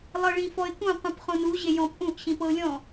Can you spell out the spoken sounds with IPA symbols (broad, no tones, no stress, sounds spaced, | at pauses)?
lˠ ɤ ɭ ĩ f ɔ ɪ̯ k ũ qʷ ĩ p χ õ n u ʑ e j ɔ̃ p ʔ ũ ʔ ɕ ĩ p ɤ ʊ̯ lʲ ɔ̃